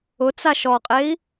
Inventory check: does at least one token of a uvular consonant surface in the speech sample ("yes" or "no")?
yes